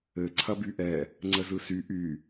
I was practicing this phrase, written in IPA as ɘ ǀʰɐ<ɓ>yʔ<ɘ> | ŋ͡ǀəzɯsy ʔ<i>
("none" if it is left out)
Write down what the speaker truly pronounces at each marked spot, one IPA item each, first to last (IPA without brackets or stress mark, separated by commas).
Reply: b, ɛ, y